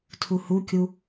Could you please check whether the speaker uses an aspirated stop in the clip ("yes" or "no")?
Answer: yes